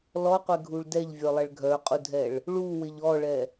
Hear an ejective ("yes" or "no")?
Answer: yes